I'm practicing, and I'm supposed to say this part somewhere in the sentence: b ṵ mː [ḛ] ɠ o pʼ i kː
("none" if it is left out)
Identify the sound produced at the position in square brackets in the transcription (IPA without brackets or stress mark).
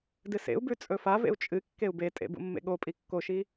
ḛ